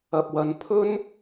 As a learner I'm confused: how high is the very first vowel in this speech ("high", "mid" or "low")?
low